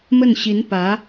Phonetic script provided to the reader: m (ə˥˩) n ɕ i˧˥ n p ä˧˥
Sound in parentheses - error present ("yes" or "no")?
no